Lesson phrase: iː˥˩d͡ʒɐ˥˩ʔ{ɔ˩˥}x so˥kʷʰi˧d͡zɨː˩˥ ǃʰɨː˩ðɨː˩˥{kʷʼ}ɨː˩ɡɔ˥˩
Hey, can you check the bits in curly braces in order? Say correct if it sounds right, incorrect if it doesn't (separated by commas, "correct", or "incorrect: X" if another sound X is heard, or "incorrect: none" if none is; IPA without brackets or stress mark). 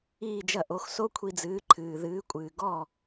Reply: incorrect: o˩˥, correct